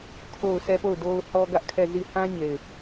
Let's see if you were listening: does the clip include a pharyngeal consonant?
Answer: no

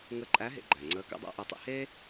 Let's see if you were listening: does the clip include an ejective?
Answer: yes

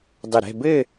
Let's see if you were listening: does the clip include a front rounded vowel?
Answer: no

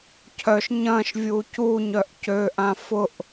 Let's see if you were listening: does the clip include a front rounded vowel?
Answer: yes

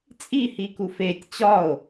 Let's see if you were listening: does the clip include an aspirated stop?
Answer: no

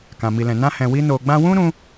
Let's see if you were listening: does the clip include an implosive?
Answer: no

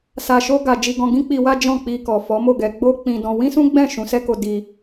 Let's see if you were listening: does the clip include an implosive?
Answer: no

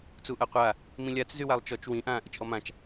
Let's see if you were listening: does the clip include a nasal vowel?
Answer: yes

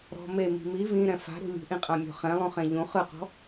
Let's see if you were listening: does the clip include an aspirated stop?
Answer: no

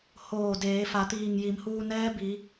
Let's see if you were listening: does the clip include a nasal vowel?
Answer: no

